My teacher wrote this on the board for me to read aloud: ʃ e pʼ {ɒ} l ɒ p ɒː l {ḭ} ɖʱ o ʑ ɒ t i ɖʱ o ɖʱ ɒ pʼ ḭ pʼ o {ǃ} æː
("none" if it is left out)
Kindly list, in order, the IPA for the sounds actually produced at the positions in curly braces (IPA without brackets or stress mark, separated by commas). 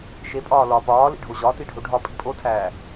ɒː, ḭ, tʰ